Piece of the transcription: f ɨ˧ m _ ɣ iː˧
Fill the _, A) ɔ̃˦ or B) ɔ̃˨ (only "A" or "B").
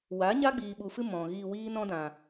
B